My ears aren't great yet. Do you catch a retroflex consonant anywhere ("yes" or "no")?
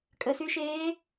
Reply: no